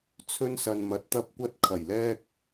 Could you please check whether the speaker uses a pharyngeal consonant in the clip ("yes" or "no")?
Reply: no